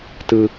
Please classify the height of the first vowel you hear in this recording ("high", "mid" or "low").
high